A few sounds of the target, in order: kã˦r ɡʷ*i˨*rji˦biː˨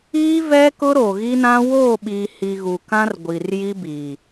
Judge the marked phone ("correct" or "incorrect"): correct